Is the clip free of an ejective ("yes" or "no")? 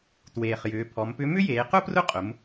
no